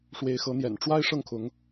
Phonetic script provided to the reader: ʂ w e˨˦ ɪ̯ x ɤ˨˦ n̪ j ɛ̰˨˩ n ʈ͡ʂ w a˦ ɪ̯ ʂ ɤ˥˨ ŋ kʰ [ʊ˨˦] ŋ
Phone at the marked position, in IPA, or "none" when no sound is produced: ʊ˨˦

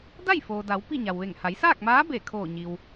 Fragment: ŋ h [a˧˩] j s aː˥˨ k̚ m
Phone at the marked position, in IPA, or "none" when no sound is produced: a˩˧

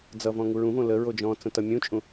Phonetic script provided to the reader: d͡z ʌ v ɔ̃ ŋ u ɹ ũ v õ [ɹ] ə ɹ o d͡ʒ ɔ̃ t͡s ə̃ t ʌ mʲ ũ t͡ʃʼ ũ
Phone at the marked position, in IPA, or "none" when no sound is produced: l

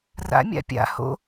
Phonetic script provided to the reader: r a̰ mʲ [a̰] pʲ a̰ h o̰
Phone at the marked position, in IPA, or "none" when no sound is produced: a̰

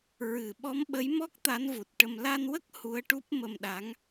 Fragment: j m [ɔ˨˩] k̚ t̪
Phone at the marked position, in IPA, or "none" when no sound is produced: ɔ˦˥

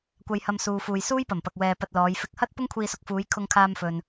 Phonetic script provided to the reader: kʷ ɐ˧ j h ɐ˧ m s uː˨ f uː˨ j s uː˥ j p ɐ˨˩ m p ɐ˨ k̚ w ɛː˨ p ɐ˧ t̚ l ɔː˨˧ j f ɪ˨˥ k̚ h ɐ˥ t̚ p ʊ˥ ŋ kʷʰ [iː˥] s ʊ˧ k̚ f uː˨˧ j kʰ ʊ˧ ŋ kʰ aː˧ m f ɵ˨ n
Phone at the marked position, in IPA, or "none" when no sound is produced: iː˧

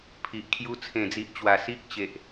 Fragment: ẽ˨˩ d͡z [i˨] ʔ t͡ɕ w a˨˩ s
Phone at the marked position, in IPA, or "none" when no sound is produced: i˨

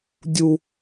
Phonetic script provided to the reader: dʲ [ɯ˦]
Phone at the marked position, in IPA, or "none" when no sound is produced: u˦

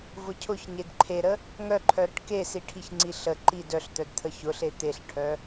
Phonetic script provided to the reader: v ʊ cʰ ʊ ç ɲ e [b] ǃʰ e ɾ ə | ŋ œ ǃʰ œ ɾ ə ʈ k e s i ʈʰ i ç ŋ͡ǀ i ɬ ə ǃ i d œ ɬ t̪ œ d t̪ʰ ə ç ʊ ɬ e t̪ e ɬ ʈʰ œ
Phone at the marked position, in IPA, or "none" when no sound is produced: d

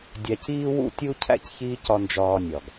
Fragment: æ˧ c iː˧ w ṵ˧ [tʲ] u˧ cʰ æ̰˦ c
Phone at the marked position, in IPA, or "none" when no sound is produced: tʲ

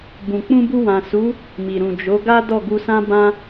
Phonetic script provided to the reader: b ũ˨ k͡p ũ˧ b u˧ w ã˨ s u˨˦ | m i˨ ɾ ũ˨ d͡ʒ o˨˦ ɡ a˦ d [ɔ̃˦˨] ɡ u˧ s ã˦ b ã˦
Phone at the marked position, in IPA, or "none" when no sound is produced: ɔ˦˨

